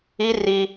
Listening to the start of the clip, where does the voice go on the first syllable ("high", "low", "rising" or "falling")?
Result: high